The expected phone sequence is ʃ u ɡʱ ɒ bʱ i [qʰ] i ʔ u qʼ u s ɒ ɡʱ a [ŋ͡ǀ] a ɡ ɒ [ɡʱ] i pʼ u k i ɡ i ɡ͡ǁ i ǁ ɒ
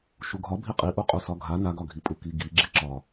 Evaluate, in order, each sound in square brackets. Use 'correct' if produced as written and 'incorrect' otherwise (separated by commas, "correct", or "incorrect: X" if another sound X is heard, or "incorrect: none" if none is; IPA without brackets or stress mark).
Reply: incorrect: qʼ, incorrect: n, correct